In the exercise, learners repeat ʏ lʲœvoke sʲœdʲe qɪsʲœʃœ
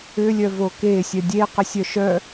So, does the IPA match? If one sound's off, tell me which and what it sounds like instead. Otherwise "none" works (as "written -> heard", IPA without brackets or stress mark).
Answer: none